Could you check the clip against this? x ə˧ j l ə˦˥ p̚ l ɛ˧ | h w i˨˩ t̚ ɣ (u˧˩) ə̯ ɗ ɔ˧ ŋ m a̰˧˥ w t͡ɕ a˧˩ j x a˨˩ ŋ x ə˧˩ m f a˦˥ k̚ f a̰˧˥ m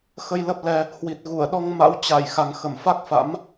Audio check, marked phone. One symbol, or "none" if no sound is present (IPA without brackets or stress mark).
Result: u˧˩